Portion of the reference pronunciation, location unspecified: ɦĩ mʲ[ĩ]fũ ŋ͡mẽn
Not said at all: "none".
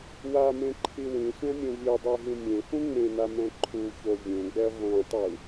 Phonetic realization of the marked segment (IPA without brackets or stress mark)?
ẽ